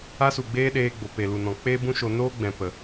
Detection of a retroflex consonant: absent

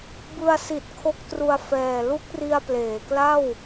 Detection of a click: absent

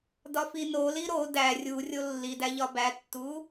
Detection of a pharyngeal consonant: absent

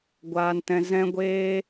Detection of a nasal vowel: present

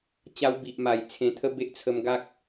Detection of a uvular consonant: absent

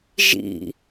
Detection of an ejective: absent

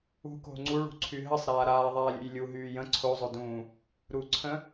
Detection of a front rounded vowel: present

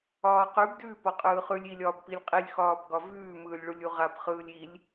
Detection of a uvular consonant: present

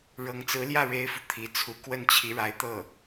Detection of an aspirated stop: present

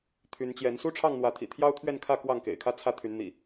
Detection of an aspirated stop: present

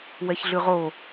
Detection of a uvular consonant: present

